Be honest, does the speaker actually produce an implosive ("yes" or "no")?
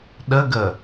yes